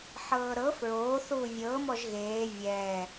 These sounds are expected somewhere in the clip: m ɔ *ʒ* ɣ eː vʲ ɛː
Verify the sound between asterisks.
correct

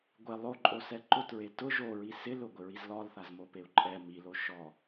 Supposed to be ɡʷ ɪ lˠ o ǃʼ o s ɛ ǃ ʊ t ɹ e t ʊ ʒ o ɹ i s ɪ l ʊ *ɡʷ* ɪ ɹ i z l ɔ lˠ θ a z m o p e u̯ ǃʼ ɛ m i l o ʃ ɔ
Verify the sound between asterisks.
correct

